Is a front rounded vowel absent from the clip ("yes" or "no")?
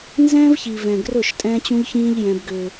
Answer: no